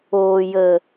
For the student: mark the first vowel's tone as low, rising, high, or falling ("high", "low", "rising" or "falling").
low